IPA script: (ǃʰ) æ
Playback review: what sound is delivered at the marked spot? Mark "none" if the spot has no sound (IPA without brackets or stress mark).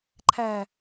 ǃʰ